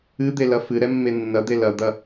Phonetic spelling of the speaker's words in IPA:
ɨ d̪ e l ɐ f ɨ ɾ ɛ mː e nː ɐ d̪ e l ɐ d̪ ɐ

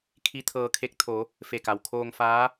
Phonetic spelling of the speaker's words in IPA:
kʰ i˧˥ t̪ʰ ɤː˧ kʰ e˧˥ k̚ t̪ʰ o˩˧ | f e˧˩ k a˩ w kʰ oː˧ ŋ f aː˧˥

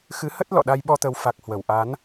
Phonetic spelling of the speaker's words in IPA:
x ɨ˨˦ h ə˦˥ t̚ l ɔ̰˧˨ ɗ a˧ j ɓ ɔ˧ t̪ ə˨˦ w f a˨˩ k̚ h w ə˧˩ w ʔ a˨˦ n

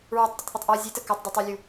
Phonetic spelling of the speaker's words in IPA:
ɹ ɔ tˤ dʲ ɵ tˤ θ ɵ tˤ ʔ ɔ zʲ e t ə k ɔ tˤ d u tˤ ɵ lʲ u

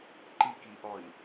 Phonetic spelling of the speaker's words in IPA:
ǃ i k i ʔ ɔ i̯

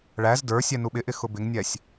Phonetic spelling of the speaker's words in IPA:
ɭ æ z d ə˞ sʲ ɛ n u ɓ ɪ ʔ ɪ x ʊ b ɪ ŋ nʲ ɛ sʲ

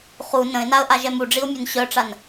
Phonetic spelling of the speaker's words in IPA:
χ u n ə̃ ɪ̯ n a ə̯ ʔ a ʒ ɛ m u ɖ͡ʐ i ʊ̯ mʲ ø n ɕ œ ʈ͡ʂ a n

